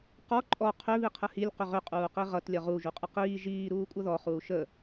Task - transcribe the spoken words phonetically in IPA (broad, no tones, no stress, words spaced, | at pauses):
qɔ ǃʼɔ qʰʏ βiqʰəhilʲ qʏʁʏ qʼuːqiʁʌt lʲʌʁu ʒuqʼəqiː ʒiː ɾuːkʷʼʌðɔ χuːʃə